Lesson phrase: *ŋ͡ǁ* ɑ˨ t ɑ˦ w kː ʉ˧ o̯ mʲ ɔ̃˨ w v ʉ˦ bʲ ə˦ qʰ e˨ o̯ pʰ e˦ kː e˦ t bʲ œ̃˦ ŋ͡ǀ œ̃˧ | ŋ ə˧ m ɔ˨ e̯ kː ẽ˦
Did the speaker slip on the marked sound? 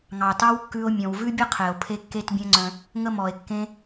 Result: yes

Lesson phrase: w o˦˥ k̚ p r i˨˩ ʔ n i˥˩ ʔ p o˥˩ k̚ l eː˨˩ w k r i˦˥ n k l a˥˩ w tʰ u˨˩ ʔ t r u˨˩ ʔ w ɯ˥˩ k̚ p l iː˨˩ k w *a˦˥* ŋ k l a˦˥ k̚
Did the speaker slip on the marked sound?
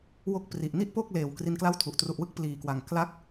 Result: yes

